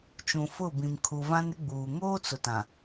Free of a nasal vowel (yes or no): no